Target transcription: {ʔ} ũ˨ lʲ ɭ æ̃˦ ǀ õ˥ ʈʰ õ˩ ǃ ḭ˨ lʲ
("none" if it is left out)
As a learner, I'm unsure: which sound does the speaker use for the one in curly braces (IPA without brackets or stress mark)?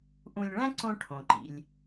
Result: ʔ